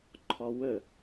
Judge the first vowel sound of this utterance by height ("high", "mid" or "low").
low